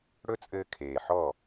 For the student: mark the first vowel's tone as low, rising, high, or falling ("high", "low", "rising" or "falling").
high